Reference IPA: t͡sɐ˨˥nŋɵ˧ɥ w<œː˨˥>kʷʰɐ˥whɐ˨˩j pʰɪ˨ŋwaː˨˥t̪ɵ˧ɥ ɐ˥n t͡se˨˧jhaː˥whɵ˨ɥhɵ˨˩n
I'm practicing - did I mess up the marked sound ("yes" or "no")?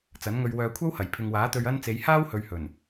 yes